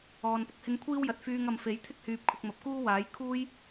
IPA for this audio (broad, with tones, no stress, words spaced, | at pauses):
ɔː˨npʊ˨˥k̚hɪ˧ŋ kʷʰiː˥wjɐ˨t̚fyː˧ŋ ɐ˨mfe˨˥j t̪ʰɪ˥k̚hyː˨p̚kʰʊ˨k̚mɐ˨p̚ kuː˥waː˨˥j kʰuː˥j